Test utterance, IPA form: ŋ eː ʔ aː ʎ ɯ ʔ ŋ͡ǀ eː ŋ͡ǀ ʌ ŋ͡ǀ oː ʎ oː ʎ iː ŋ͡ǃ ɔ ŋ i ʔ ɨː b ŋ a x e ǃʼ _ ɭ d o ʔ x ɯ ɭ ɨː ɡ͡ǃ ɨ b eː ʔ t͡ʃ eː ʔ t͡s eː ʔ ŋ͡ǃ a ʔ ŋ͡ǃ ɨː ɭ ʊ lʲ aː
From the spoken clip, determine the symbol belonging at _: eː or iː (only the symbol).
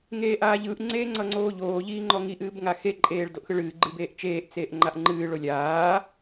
eː